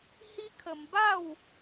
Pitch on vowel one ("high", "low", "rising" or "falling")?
high